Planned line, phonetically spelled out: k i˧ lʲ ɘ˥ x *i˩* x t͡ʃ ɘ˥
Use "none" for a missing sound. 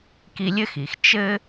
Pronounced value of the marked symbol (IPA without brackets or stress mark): i˩